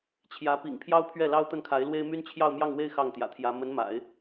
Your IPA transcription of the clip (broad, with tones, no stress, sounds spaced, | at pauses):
t͡ɕʰ j ä˧˥ p ḭ˨˩ ŋ pʰ j ɑ˥ ʊ̯ pʰ ɥ ɛ˥˩ l ɑ˥ ʊ̯ t̪ ə˥˩ n kʰ a˧˥ ɪ̯ l w e˥ ɪ̯ m y˥ n t͡ɕʰ j ɑ˥˧ ʊ̯ m j ɑ˥˧ ŋ w e˥˧ ɪ̯ x ɑ˥˩ ŋ t̪ j ä̰˨˩ t̪ʰ j ä˧˥ m ə˧˥ n m a̰˨˩˦ ɪ̯